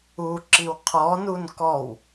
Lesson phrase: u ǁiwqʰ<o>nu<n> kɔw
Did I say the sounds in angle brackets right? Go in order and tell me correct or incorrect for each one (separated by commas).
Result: incorrect, correct